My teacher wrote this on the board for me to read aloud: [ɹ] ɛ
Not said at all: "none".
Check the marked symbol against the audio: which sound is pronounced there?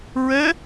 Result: ɹ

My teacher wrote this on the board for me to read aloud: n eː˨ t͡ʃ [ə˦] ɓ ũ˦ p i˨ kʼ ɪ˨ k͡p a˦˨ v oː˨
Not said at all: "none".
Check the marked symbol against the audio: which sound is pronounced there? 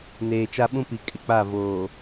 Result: a˦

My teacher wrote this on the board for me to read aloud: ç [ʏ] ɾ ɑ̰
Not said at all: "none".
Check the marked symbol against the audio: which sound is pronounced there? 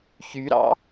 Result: y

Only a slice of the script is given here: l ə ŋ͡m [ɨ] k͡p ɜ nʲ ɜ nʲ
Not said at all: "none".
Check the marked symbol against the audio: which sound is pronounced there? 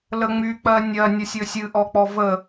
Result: y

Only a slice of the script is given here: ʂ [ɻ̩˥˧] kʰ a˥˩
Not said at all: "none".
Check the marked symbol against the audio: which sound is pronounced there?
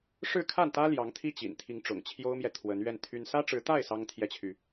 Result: ɻ̩˥˧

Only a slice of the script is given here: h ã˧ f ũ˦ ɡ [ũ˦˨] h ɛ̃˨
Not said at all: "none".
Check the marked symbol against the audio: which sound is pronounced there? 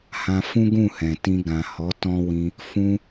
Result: ũ˦˨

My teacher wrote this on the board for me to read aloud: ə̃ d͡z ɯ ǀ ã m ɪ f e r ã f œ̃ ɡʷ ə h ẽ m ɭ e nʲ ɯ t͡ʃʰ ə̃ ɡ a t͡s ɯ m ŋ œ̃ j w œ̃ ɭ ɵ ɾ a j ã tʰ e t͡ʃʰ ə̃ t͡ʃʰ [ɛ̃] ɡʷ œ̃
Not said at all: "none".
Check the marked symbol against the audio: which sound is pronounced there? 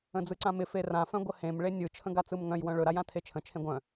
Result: ẽ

